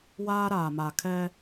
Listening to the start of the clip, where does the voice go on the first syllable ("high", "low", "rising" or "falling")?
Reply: high